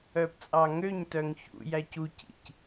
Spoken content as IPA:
œ p t͡sʼ ɑ ŋ ø ɲ t œ ŋ ç ṵ j æ c u c ḭ c

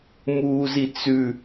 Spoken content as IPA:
m uː z i t͡s ʉ

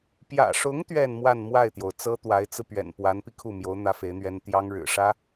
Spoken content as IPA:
p j ä̰˨˩ ʂ ʊ˧˥ ŋ t̪ ɥ ɛ˥˧ n m w a˥˧ n m w a˥˩ ɪ̯ t̪ j o˩ ʊ̯ t͡s ɤ˥ t̪ w a˧˥ ɪ̯ t͡s ɹ̩˧ p ɥ ɛ̰˨˩ n p w a˧˥ n p i˧ kʰ u˥˩ m j o˧˥ ʊ̯ n̪ ä˥ f e˧˥ ɪ̯ n̪ ɥ ɛ˥ n t̪ j ɑ˥ ŋ ɻ ɻ̩˨˩ ʂ ä˥

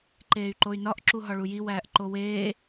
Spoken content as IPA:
ǃ eː y̯ ǃ o y̯ n ɒ ʔ ǁ u ɦ ɒ ɭ u j i w æː ʔ ǃ o w eː

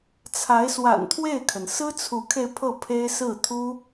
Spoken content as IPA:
t͡sʰ a˧˥ ɪ̯ s w a̰˨˩ n t̪ʰ w e˥˩ ɪ̯ kʰ ə˩ n s ɹ̩˥ t͡sʰ u˧˥ kʰ e˧ ɪ̯ pʰ ɤ˥˩ pʰ e˥ ɪ̯ s ɹ̩˥˩ t̪ʰ u˥

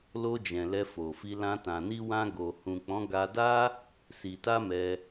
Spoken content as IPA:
l o˧ d͡ʒ ɛ̃˨ l ɛ˧ f o˨ f i˧ l ã˧ t ã˨ n i˧ w ã˧ ɡ o˨ h ũ˨ k͡p ɔ̃˨˦ ɡ a˧ d a˦ | s i˨ t a˧ m ɛ˧

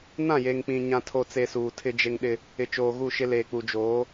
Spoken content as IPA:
n ã˦˨ j e˨ ŋ k͡p ĩ˨ ɲ ã˨ tʰ o˨ t͡s e˨ s uː˨ tʰ ɪ˦ d͡ʒ e˦ ŋ ɗ ɪ˦ | ɪ˨ t͡ʃ oː˨ ɣ u˦˨ ʃ ɪ˦ l eː˨ k͡p u˨ d͡ʒ oː˨˦

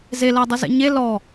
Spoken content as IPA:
z e l ɐː dˤ ʌ z ɛ̰ ɲ e l ɔ

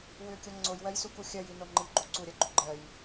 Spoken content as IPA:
w ʏ kʲ o ŋ͡ǀ o j w ɜ j s u k u xʲ ɜ j i n o ŋ͡ǃ i ɡ͡ǃ u ǀ u ɾʲ ɜ ɡ͡ǃ ʏ ɡ͡ǃ ɜ j

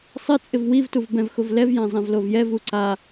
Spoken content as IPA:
sˤ ɪ t͡sʼ ɪ v w i v t u v b ɛ̃ v x ʊ v l ɛ v j ã zˤ ɛ̃ v l o v j ɛ v u ǀ a

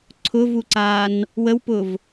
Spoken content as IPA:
ǀʰ ʊ v u ǀ aː n | w ə w p ʊ v

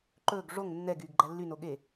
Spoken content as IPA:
ǃ ɵː ɡ ʐ o ŋ nː ɛ ɡ yː ɡ ɡ͡ǃ æ lː y n o ɠ e

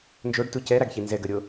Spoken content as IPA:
n d͡ʒ o ɖ t u c ɛ ɾ a ɡ ç i n z ɛ ɡ ə ɾʲ o

